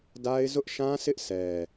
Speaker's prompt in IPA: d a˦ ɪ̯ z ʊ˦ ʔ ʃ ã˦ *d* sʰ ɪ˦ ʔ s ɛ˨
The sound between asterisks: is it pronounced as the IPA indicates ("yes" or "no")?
no